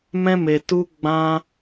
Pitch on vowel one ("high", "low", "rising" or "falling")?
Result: high